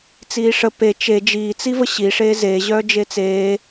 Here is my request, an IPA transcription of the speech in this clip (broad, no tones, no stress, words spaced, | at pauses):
t͡siːʂə pe t͡ʃe d͡ʒiː t͡sivəɕi ʂeze ʑœːd͡ʒet͡seː